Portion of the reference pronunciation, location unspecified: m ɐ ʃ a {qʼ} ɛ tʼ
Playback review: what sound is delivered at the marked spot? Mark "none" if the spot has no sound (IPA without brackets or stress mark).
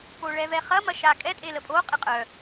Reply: kʼ